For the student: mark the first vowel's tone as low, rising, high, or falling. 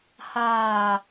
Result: low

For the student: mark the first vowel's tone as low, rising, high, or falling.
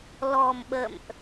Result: low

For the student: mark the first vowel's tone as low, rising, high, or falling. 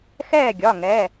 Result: falling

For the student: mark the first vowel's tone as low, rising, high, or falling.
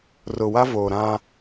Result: low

